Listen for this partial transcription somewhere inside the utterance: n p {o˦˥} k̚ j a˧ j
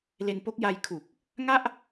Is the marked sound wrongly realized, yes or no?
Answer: no